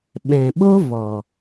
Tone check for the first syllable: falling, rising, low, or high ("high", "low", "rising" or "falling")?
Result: low